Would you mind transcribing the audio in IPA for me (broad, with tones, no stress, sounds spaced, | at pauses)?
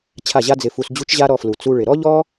t͡ɕʰ a˦˨ ʑ a˦ d͡z ɪ˧ f u˧ s d͡ʑ u˦ t͡ʃ ʑ a˦ ɾ ɔ˧ f l u˨ t͡s u˧ ɭ ɪ˨ ɾ ɔ˦ ʎ ɔ˦